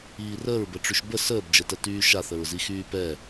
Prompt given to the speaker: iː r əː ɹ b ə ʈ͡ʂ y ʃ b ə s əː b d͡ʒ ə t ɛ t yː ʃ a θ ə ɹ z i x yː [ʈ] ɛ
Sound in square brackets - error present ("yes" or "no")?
yes